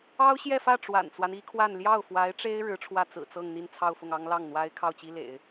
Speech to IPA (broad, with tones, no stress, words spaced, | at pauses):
ɑ˥ʊ̯ɕjɛ˥˧fä˥˩ ʈ͡ʂwa̰˨˩nt͡swa˦ni˥kʰwa˥˧n ljɑ˥˩ʊ̯fwa˧˥ɪ̯ʈ͡ʂe˥ɪ̯ ɻɻ̩˧˥ʈ͡ʂʰwä˥˩ t͡sɹ̩˨˩t͡sɤ˥˧ŋ n̪i˥˧nt͡sʰɑ˥˧ʊ̯fʊ˥˩ŋ ɑ˥ŋ lɑ˥˩ŋn̪wa˥ɪ̯ kʰɑ˥˩ʊ̯t͡ɕi˥ lḛ˨˩˦ɪ̯